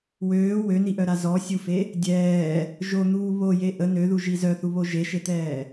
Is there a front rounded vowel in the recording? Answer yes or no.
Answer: yes